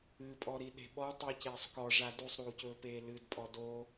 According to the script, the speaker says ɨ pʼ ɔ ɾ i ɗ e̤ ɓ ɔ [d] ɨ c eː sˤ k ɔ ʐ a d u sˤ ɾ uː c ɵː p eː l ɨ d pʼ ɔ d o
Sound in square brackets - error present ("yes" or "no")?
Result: yes